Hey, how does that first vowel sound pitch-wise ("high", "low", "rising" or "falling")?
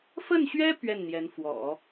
falling